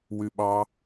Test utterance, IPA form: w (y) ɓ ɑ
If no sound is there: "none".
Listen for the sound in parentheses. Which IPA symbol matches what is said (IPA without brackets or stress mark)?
y